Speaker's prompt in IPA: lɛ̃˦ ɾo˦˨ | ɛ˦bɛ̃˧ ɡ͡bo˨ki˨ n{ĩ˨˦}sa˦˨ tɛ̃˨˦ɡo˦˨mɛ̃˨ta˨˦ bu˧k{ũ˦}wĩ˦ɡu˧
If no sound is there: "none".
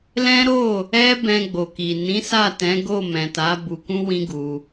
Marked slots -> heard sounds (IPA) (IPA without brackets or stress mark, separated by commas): ĩ˨˦, ũ˦